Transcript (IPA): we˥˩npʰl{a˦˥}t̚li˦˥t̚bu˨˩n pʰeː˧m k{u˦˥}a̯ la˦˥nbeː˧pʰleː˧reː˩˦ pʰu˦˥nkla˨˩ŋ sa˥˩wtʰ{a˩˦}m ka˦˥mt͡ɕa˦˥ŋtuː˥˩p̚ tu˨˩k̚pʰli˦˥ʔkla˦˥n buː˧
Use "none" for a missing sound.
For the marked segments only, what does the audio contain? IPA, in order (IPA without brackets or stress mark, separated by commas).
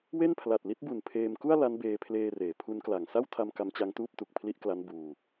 a˨˩, u˥˩, a˧